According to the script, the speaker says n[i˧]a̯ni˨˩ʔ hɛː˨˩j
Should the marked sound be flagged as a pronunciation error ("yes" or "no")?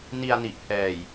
no